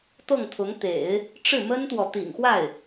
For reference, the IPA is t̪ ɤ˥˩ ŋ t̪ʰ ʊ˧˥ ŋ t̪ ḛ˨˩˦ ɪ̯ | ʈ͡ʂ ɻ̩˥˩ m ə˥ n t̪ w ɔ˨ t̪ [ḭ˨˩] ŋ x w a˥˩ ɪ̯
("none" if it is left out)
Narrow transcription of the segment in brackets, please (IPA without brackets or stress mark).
ḭ˨˩